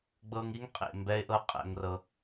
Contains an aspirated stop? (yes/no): no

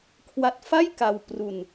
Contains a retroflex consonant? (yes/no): no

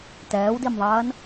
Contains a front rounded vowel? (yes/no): no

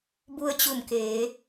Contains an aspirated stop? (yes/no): no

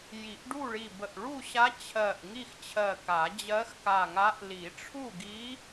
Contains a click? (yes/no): no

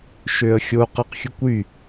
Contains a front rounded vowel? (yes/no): yes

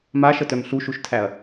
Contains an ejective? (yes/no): no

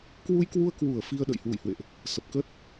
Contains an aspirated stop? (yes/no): no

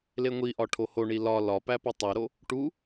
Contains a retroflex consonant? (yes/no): yes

